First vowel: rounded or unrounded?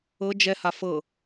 unrounded